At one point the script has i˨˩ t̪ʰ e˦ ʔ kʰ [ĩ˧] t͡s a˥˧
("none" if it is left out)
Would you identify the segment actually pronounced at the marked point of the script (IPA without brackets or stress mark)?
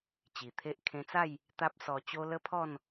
ẽ˧